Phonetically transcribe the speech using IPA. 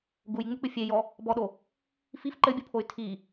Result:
ɡujŋ͡muk͡pɨ fʲejɔ | bɔɗo | fif ǃɘbʲupʰoy̯ tʰi

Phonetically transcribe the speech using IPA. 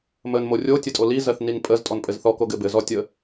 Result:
mən morʲo tʲɘtʼoli zɜθninpʼəz tʼɔnpʼɘzθɔ koɡɘbɘ zɔtʲə

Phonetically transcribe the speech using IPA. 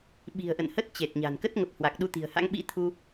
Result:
ɓi̤˨˩ə̯ʔə̰˧˨nhə˦˥t̚ t͡ɕe˨˩t̚ɲa̤˨˩n kə˦˥t̚ŋə˨˩p̚ hwa˨˩k̚ɗu˧t̪i̤˨˩ə̯ha̰˧˥ŋ ɓḭ˧˥t̪ʰu˧

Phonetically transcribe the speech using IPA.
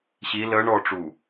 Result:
ɕi lə ɳɔʈ͡ʂu

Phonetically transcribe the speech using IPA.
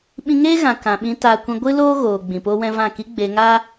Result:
ɓĩ˧ŋeː˦ɣã˨ kã˨ɓĩ˧ taː˧kʷĩ˧ ɡʷɨ˦ loː˦ɣoː˨ ɡ͡bĩ˨ poː˦wɛ̃˦vã˦˨ ki˦ɡ͡beː˧ŋaː˦

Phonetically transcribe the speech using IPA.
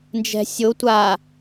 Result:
nd͡ʒɛ̤sʲo tʷa

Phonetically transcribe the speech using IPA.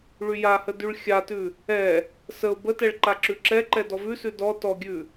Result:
ɭyjahə dyɭxʲatʉ | ɛ | səʊ̯ bətɛɭ ǃaǁʉǁɛǃɛ dɔvʉsʉ dɔ tɔɡʲʉ

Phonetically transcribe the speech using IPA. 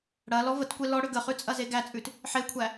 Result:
ɽɐ lɔvətkʷe lɔ ɽʏɡəχʉ t͡sʼɐzeɡæt͡sʼʉt | ħekʷʰæ

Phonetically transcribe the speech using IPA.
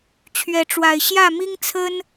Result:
t͡ɕʰɥɛ˨˦ʈ͡ʂwa˨˩ɪ̯ɕjä˥˨ mi˦ŋt͡sʰə˦n

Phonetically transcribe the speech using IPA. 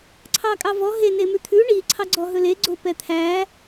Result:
ǀʰɑkʼɑvɔ ɦe nemʉt̪ʰʉ ɳi ǀʰɑɡ͡ǀɔɦɵle ɡ͡ǀopɛt̪ʰæ

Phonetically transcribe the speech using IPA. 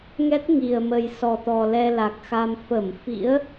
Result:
ŋɛ˦˥t̚ ŋi˨˩ə̯mə˨˩jsɔ˨˩t̪ɔ˨˩ lɛ˧la˨˩k̚xa˧m fə˧˩mfḭ˧˥ə̯

